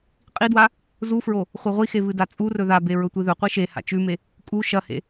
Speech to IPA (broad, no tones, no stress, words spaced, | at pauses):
qʼidwa | zufɹo | χʷeʁʷixe vɨdat͡sʼurɵ ðabe ɹɵtʷɨðɵqʷɨ ʃe ha̰t͡ʃʉme | kʼu ʃɐhḛ